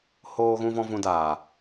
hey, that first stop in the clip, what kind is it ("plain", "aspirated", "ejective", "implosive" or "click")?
plain